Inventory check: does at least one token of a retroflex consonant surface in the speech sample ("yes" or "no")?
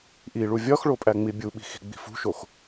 yes